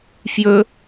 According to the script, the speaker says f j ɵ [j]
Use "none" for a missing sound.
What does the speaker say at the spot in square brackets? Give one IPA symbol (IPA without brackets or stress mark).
none